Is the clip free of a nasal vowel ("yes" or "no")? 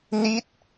yes